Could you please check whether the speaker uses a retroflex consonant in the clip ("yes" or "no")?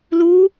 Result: no